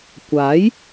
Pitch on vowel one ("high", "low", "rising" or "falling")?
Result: rising